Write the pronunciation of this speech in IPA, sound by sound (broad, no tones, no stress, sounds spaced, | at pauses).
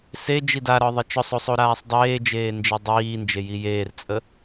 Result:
s e d͡ʒ i d a ɾ ɒ ðˤ e t͡ʃ ɔ sˤ o sˤ o ɾ aː sˤ dˤ eː d͡ʒ eː n d͡ʒ i dˤ iː n d͡ʒ e j i j eː r t͡sʼ ə